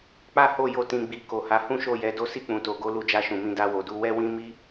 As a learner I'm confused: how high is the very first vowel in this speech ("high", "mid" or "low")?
low